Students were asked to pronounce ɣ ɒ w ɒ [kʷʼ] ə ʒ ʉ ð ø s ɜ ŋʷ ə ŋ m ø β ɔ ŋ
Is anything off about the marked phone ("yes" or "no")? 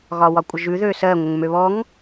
no